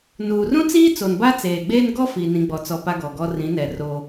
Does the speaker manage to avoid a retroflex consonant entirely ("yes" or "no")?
yes